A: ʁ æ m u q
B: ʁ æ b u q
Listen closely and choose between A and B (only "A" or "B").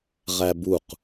B